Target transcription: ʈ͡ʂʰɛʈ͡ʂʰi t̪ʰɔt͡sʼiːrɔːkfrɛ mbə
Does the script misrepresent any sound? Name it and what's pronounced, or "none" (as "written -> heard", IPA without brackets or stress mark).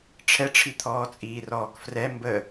ɔ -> ɔː